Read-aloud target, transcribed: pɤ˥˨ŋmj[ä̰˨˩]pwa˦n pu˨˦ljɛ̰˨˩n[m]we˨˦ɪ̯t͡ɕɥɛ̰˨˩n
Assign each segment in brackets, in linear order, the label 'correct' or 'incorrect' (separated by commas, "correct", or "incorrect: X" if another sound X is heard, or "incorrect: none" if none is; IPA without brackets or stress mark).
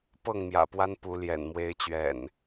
correct, correct